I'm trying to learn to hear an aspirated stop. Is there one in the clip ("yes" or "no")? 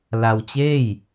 no